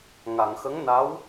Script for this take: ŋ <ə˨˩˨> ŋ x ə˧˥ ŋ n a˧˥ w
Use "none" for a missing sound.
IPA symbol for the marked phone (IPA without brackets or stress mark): a˨˩˨